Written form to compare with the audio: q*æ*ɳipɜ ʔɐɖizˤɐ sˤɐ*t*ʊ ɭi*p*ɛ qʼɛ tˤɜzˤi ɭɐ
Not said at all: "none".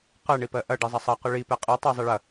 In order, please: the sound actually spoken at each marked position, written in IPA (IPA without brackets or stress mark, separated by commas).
ɜ, q, p